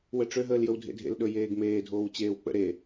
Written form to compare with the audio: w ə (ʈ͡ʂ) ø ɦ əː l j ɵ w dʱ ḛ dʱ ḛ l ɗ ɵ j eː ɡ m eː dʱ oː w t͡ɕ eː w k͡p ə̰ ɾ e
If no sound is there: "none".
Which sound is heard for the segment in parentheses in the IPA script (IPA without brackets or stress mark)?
ʈ͡ʂ